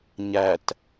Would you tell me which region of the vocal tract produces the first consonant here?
palate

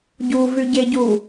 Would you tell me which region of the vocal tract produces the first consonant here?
palate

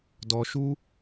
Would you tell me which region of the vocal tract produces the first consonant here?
tongue tip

